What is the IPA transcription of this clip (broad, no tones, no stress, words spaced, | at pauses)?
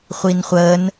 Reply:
χʷinχʷən